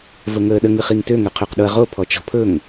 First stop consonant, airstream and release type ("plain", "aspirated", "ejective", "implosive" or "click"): implosive